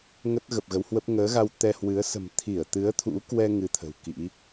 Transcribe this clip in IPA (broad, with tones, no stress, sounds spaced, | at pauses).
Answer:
ŋ ə˦˥ t̚ ɣ ə˨˩ p̚ ɣ ə˨˦ w h w ə˦˥ p̚ ŋ əː˨˦ ɣ a˧ w t̪ ɛ˧ h w ɨ˨˦ ə̯ s ə̤˨˩ m t̪ʰ i˧˩ ə̯ t̪ ɨ˨˦ ə̯ t̪ʰ ṵ˧˥ k w ɛ˧ ŋ ɨ˧ t̪ʰ ə̤˨˩ w k ḭ˧˥